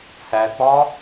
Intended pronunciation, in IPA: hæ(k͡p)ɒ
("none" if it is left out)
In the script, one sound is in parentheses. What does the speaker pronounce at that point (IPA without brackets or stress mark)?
k͡p